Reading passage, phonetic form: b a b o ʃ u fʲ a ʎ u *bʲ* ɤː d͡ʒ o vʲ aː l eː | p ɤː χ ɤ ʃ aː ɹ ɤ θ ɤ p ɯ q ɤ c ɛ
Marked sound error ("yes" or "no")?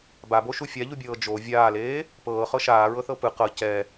no